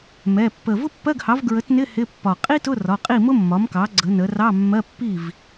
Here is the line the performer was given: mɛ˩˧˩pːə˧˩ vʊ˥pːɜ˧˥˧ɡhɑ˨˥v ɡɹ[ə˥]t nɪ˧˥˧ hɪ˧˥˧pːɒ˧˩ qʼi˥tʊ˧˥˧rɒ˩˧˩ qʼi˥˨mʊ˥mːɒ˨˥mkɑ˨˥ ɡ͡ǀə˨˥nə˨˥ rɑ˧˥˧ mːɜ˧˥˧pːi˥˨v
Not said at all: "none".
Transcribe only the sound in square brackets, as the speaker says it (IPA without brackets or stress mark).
ə˨˥